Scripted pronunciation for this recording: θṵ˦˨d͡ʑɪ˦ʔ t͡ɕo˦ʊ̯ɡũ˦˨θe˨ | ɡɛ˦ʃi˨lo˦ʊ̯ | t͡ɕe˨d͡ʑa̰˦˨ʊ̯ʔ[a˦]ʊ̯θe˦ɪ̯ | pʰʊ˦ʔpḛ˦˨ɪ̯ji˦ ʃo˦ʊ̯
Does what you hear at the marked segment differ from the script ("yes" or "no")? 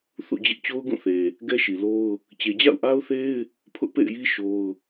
no